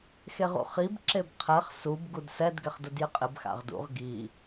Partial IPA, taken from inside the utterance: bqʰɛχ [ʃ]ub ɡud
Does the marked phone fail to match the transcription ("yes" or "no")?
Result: yes